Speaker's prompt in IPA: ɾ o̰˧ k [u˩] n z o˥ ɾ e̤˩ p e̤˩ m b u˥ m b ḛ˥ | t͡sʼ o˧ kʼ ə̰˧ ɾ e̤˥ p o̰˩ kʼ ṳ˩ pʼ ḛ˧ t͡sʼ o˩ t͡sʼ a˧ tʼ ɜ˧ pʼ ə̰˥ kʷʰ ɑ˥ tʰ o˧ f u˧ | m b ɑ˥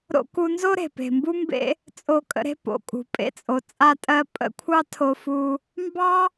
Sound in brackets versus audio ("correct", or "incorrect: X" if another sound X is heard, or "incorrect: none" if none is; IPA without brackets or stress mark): incorrect: u˧